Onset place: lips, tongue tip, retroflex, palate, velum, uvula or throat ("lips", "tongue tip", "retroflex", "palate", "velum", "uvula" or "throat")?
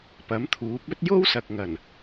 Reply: lips